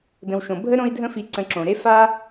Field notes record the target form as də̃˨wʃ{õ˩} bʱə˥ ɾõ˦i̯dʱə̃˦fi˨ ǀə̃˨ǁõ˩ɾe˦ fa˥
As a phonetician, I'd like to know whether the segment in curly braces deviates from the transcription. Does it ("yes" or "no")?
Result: no